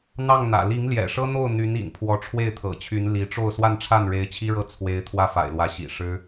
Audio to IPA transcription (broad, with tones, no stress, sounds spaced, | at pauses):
n̪ ɑ˥˩ ŋ n̪ ä̰˨˩ l i˧˥ ŋ l j ɛ̰˨˩ ʂ ɤ˥ n̪ o˥˩ ʊ̯ n̪ y˧˥ n ḭ˨˩ n pʰ w ɔ˧˥ ʈ͡ʂʰ w e˥˩ ɪ̯ t̪ʰ ɤ̰˨˩ t͡ɕʰ y˧˥ n l i˧˥ ʈ͡ʂ o˥˧ ʊ̯ s w a˥˧ n ʈ͡ʂʰ a˥˩ n ɻ e˧˥ ɪ̯ t͡ɕʰ i˥ ɻ ɤ˥˩ t͡sʰ w e˧˥ ɪ̯ t̪ʰ w ä˥˩ f a̰˨˩ ɪ̯ l w ä˧˥ ɕ ḭ˨˩ ʂ ɻ̩˥